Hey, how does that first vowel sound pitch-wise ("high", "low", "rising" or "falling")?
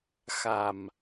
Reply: low